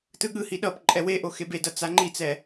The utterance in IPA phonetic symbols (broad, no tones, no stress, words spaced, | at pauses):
tɯɠɯhi ɗʌp ǃʼɛweʔo xebedʌ t͡saŋ͡ǃit͡sɛ